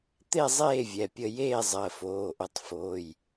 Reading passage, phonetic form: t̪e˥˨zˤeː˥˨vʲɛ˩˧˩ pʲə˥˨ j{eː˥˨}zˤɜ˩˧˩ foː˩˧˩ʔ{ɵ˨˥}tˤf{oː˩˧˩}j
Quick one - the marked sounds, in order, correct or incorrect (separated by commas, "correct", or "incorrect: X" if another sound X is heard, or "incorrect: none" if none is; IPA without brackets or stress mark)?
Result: correct, correct, correct